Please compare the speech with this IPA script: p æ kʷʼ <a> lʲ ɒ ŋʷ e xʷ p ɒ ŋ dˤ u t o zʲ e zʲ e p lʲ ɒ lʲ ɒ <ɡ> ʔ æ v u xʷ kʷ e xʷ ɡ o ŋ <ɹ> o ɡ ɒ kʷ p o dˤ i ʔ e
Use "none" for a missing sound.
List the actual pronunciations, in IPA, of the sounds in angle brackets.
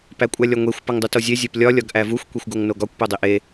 æ, ɡ, n

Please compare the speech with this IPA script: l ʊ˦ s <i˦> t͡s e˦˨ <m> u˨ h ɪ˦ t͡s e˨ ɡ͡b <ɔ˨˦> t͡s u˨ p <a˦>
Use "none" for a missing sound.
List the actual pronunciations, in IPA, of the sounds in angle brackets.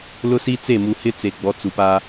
i˦, m, ɔ˨˦, a˦

